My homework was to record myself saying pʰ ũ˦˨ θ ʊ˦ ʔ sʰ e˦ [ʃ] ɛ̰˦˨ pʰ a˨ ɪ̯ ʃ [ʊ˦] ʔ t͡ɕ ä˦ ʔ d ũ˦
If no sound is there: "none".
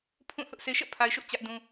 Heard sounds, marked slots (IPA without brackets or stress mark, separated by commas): ʃ, ʊ˦